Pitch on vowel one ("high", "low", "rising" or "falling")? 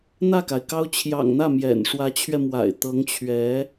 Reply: falling